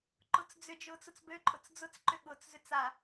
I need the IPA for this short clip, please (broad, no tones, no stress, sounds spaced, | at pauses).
ǃ ʊ t͡s d͡z ʏ d͡ʒ ʊː t͡s ʊ t͡s b ø ǃʼ ʊ t͡s d͡z ʊ t͡s ǃ ʏ ɠ ʊ t͡s z ʏ t͡s a